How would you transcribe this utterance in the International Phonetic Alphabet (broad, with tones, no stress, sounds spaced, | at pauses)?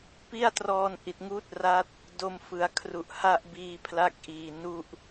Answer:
p i˥˩ a̯ t r ɔː˧ n ʔ i˨˩ t̚ ŋ uː˦˥ t̚ r a˦˥ t̚ | d o˧ m f ɯ˩˦ a̯ kʰ r u˨˩ ʔ h a˥˩ ʔ b iː˧ pʰ l a˦˥ k̚ ʔ iː˨˩ n u˥˩ ʔ